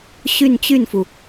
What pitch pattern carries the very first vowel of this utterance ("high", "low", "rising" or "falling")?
falling